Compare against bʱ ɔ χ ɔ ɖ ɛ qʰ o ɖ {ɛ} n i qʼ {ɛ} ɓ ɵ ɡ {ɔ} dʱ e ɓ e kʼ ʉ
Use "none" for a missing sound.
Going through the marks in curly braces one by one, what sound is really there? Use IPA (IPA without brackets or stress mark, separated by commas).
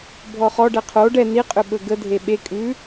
ɛ, ʏ, ə